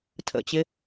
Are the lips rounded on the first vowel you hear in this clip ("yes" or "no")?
no